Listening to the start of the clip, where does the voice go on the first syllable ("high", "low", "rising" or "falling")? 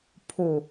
low